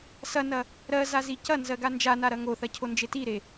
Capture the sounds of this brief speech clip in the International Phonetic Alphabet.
s ɐ n ɐ | ɾ ɜ z a z i c ɐ n z ɜ ɡ a n d͡ʒ a n a ɾ ɐ ŋ o θ ɐ cʰ o n d͡ʒ e t i ɾ e

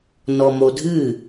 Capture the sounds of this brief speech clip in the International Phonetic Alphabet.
n ɔ m o dʱ ɨ

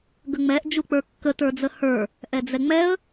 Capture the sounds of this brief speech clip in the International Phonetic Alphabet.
ɡ ə ŋ͡m ɛ ʔ d͡ʒ u k͡p ə˞ kː ə t ə˞ d͡z ə h ə˞ | ʔ ɛ d͡z ɛ ŋ͡m ɛ ə̯

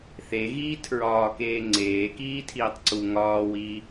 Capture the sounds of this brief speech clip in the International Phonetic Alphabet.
θ e ɣ iː tʰ ɹ ɒː k eː ŋ͡ǀ eː k iː tʰ iː tˤ ǀ u ŋ ɒː w iː

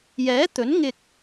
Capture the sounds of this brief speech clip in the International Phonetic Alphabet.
j ɛː˨˥ t̪ ɵ˨˥ n ŋ ɪ˧ k̚

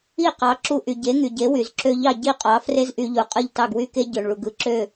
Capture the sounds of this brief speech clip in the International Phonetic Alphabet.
i˥˩ q ɑ˩˥ ǁ u˧ ʔ y˩ ɟ e˩˥ ŋ y˩ ɟ e˩˥ w y˩ z ǁ ø˧ ʎ ɑ˥˩ ɟ i˥˩ qʼ ɑ˩˥ f r e˥ z ʔ y˧ ʎ u˩ qʼ ɯ˥˩ ʎ t ɑ˥˩ ɡ w y˥ k e˥ ɟ ø˩ ɳ ɭ u˩ ɡ ɯ˩˥ ǁ ø˥˩

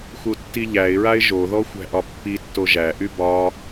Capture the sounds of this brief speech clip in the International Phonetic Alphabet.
x u tː i ʎ æ ɪ̯ ɹ a ɪ̯ ʒ o ð ɔ xʷ æ̤ ʔ ɒ pː i tː o ʒ æ ʔ y b ɒ

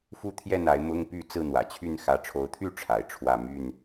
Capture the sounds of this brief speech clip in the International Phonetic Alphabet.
f u˦ t̪ʰ j ɛ˥˨ n a˨˦ ɪ̯ m ʊ˦ ŋ p y˥˨ t͡s ɹ̩˥˨ n̪ w ä̰˨˩ t͡ɕʰ y˥˨ n x ä˨˦ ʈ͡ʂʰ o˨˦ ʊ̯ t̪ʰ y˥˨ ʈ͡ʂʰ a˨˦ ɪ̯ ʈ͡ʂʰ w ä˥˨ m y˥˨ n

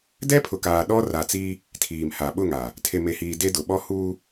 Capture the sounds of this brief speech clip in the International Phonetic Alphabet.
d ɛ˦ pʰ ʊ˨ k aː˨ ɗ ɔ˦ r a˨ t͡s i˦ | tʰ iː˨ m h a˨ ɓ ʊ˦˨ ŋ a˨ | tʰ e˨ m e˨ h iː˨ d e˦ d ʊ˨ ɓ ɔ˦ h uː˦

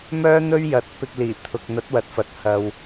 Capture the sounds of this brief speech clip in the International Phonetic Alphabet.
m œː˥ n̪ ɵ˥ ɥ j ɐ˨˥ t̚ p ɪ˧ k̚ l iː˨˩ t̪ʰ ʊ˨ k̚ n̪ ɐ˨˥ t̚ w ɐ˨˥ t̚ f ɐ˨ t̚ h ɐ˨ w

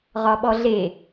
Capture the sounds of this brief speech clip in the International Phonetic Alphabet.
ʁ ɒ ɓ ɔ ɮ e

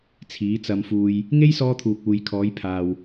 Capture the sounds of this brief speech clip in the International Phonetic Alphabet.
t͡sʰ iː˨˧ t͡s ɐ˨ m f uː˨ j | ŋ e˥ j s ɔː˧ t̪ʰ uː˨ k̚ uː˨ j kʰ ɔː˨˧ j pʰ aː˨ w

